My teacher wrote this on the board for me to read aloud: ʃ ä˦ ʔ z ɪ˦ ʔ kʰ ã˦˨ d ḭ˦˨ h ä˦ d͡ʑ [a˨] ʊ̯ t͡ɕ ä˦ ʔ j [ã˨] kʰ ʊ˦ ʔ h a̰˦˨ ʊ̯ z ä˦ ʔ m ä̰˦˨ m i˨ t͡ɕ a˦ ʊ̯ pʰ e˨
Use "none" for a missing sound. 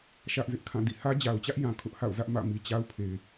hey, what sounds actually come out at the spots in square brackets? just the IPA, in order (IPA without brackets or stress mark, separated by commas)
a˨, ã˨